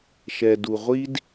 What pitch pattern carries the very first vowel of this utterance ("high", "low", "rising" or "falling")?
low